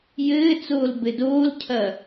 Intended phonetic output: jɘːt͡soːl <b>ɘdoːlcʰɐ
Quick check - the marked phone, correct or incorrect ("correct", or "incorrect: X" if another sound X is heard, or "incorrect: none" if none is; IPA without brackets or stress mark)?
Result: correct